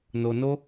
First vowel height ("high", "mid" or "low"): mid